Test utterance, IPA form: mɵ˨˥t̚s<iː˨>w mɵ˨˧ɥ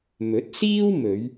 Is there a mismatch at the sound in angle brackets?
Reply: yes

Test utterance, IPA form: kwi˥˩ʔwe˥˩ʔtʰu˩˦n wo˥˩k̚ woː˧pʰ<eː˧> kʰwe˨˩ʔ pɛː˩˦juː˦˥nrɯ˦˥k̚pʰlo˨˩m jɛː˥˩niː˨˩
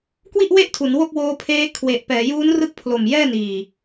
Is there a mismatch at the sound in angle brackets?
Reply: yes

